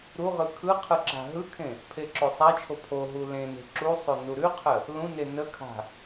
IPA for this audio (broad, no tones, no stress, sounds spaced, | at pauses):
ɾ u ʁ ɯ kʰ ɯ qʰ ɯ ǁ a̤ ɦ ɯ kʰ ẽ | pʰ e ǁ o sˤ a t͡ʃʰ o pʰ o ɦ u l ẽ n e̤ ǁ u sˤ o n u ɾ ʉ qʰ ə | l ũ n e n ə kʰ a̤